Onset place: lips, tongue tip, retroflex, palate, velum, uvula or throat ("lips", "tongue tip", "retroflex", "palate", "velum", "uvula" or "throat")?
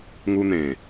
velum